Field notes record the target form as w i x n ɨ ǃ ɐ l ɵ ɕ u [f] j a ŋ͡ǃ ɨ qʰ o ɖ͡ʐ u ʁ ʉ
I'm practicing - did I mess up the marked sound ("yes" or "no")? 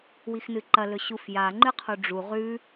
no